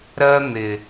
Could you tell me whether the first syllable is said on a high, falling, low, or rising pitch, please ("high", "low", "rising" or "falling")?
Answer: high